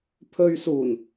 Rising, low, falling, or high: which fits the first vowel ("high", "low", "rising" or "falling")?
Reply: low